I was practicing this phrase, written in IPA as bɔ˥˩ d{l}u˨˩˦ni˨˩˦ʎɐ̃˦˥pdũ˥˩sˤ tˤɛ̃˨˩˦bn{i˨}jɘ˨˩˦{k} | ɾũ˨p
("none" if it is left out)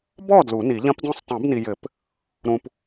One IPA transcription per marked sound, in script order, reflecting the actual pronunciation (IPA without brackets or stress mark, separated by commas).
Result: l, i˨, p